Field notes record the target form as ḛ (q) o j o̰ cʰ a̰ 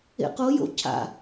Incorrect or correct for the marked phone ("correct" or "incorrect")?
correct